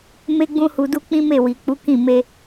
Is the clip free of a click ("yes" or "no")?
yes